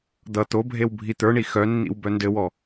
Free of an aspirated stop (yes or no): yes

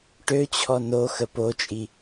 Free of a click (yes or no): yes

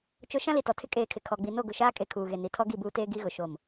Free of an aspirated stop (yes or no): no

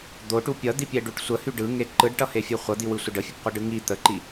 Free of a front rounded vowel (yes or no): no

